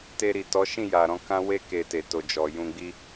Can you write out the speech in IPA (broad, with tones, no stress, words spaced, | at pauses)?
te˧ɾi˨tɔ˨˦ʃĩ˦˨ ja˨ɾɔ̃˨˦kã˦ we˦ ke˧te˨ to˨d͡ʒɔ˨jũ˧ɡ͡bi˦